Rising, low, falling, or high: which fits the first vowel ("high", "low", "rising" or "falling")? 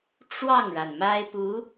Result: falling